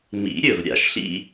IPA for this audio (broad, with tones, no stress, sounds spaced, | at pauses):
m ḭ˨˩˦ ɾʲ ɵ˨ v ɾʲ a̰˨ ʃ ɬ ḭ˥